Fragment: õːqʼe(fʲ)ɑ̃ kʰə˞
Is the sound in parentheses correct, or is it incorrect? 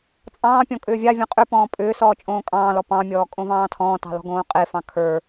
incorrect